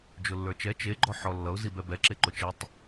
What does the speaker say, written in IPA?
d͡ʒʊlːə˞t͡ʃɛ t͡ʃeɡ͡ǃɔ ħɔlːʌʊ̯ zibɛbɛǁe ǃʊt͡ʃɛtˤ

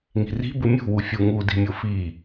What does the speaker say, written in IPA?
ŋi̤ri̤ bɯmʲṳ wufʲu ŋu di̤mʲofi

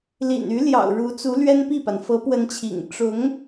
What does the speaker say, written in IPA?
lḭ˨˩ny˧˥ljɑ̰˨˩ʊ̯ ɻu˧˥t͡su˧˥ lɥɛ˥npi˥˩pa˩n fɤ˧˥pwə˧˥nt͡ɕʰḭ˨˩ŋ ʈ͡ʂʊ˧˥ŋ

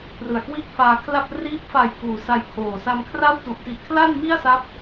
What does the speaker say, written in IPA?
prɯ˨˩a̯kwiː˥˩k̚faː˧kʰla˥˩p̚ riː˦˥p̚fa˨˩jkuː˩˦ sa˧j kʰoː˨˩ sa˧mkʰra˥˩wtu˨˩ʔ ti˨˩ʔkʰla˥˩n mi˥˩a̯sa˦˥p̚

